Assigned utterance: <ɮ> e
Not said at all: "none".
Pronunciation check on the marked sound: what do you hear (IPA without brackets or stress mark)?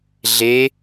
ɮ